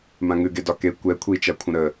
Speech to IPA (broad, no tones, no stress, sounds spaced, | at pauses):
m ã ŋ ʉ ɡ e d ɒ k e kʷ ɛ kʷʰ i t͡ʃ a kʷʰ ə̃ ɾ ə